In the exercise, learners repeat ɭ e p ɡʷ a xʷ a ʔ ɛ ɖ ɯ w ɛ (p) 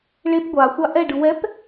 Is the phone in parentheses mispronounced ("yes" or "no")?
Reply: no